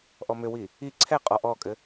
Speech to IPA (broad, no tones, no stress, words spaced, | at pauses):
ʔɔmʏwi | i ǀʰɛqʼɔ ʔɔkʼɘ